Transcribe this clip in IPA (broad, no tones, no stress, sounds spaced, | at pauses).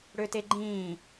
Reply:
ɽ ø t e ɡ͡ǃ ĩː